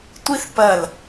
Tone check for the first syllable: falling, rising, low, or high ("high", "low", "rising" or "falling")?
high